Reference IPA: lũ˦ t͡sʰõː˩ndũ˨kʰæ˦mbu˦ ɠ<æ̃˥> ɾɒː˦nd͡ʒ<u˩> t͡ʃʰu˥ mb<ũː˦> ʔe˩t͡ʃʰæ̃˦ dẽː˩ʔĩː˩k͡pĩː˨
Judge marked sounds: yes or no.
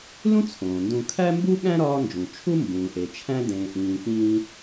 yes, no, no

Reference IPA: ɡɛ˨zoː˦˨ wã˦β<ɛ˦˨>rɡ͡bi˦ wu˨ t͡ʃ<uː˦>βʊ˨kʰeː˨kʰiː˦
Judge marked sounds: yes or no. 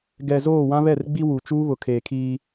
yes, yes

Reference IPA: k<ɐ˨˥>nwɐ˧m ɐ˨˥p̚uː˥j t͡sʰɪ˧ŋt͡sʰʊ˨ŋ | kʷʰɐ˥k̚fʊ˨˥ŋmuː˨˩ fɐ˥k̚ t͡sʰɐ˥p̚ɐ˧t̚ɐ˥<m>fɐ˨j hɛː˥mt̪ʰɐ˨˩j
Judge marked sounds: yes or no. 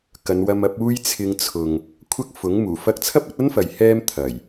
no, no

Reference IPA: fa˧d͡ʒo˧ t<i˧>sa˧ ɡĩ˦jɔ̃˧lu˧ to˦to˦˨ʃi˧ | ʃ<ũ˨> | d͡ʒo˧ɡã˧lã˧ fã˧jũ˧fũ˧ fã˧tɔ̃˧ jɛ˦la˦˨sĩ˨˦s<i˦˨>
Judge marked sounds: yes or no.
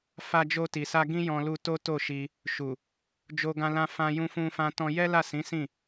no, no, no

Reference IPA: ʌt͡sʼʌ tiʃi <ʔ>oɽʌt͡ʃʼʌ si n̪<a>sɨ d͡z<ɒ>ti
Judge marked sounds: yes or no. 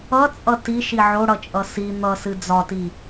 no, no, yes

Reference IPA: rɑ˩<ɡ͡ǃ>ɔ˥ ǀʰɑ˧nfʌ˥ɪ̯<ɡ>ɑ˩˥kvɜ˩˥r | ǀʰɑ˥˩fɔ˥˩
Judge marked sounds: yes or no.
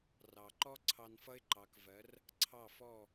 no, no

